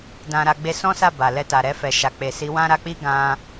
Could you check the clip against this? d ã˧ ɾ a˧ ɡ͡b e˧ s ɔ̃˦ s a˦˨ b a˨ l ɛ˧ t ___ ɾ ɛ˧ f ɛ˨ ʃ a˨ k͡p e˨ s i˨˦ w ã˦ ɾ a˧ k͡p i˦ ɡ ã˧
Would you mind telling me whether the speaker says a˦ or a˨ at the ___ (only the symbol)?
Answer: a˨